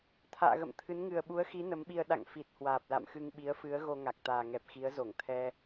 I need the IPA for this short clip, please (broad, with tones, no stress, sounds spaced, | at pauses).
t̪ʰ a̰ː˧˨ ɣ ə̰˧˨ m t̪ʰ ɨ˨˦ n ŋ ɨ˨˩ ə̯ ɓ u˨˦ ə̯ x i˨˦ n ə˨˦ m ɓ i˧ ə̯ ɗ a̰˧˨ ŋ f i˨˩ t̚ h w aː˨˩ p̚ l a̰˧˨ m x ɨ˧ ŋ ɓ i˨˦ ə̯ f ɨ˨˦ ə̯ ɣ o˧ ŋ a˨˩ k̚ t̪ aː˨˩ ŋ ɛ˨˩ p̚ x i˨˦ ə̯ z o˧˩ ŋ t̪ʰ ɛ˧